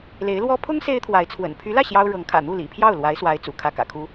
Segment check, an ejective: absent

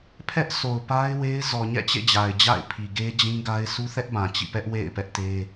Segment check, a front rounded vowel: absent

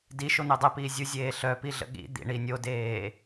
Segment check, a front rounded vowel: present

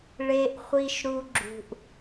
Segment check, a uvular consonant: present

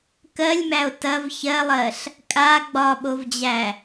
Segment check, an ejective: present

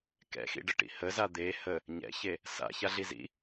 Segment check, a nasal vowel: absent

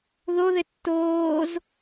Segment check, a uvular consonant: absent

